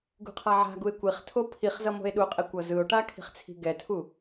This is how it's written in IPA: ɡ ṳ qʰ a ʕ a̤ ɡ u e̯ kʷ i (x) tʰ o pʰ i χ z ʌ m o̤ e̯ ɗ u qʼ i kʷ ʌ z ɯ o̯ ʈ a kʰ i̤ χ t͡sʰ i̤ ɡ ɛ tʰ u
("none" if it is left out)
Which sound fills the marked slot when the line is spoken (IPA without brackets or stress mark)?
χ